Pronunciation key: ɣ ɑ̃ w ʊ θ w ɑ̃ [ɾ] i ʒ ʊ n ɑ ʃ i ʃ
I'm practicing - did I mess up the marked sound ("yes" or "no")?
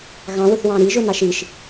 no